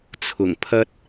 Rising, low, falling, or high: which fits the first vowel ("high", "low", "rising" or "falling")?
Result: low